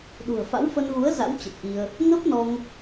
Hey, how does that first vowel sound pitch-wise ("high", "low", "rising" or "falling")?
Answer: low